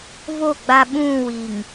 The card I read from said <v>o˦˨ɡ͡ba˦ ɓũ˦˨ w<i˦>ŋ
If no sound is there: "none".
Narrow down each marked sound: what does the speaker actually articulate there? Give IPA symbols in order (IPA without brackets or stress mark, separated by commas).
v, i˨